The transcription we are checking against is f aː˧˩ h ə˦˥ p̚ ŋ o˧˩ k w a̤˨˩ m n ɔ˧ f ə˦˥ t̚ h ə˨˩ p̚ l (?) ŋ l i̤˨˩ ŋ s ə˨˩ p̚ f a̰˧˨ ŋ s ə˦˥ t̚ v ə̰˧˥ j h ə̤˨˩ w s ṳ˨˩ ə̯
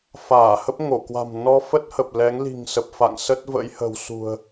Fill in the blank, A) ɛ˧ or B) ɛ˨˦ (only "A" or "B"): B